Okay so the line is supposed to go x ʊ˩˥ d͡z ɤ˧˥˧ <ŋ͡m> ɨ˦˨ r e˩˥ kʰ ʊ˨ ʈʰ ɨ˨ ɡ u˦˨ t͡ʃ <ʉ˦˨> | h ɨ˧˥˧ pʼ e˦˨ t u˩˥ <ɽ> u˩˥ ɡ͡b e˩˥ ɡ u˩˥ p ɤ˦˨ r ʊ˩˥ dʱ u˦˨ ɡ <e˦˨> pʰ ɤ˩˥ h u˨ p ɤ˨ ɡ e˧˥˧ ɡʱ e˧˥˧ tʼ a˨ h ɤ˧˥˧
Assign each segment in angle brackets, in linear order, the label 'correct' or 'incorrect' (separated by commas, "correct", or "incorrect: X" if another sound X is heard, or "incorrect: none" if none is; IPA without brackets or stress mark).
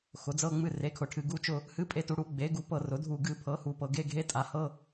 correct, incorrect: ʊ˦˨, correct, incorrect: ɨ˦˨